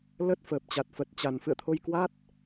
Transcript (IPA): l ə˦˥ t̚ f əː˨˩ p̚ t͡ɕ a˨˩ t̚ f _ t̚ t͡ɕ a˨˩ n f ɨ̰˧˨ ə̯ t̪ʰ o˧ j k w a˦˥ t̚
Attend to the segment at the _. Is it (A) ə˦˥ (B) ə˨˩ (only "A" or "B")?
B